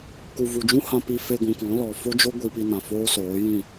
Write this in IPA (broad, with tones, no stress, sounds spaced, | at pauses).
k u˨ v u˨ d͡ʒ ũ˦ h ã˧ p i˧ f e˧ ɡʷ ũ˨ k ɔ̃˨˦ l ɔ˨ f o˦ d͡ʒ o˦ ɡʷ i˧ p i˧ n ã˨ f oː˦ s oː˨˦ j ĩ˦˨